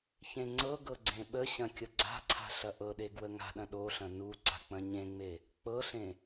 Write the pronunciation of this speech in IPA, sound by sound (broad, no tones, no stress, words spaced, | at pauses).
çẽŋ͡ǀɤɡɤ ɡ͡ǀẽɓəɕɐ̃ kʲəɡ͡ǀa̤ǀʰa̤ ɬɐʔɤɗe ɡwəŋa̤ɗɐ̃ ɗoɬɐ̃ nuǀa̤ k͡pɐ̃ɲẽŋ͡me | k͡pɤɬẽ